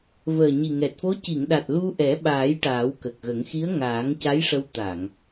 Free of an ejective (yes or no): yes